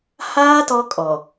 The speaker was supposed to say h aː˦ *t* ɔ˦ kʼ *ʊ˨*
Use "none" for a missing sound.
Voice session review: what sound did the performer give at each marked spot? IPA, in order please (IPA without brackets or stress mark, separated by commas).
t, ɔ˨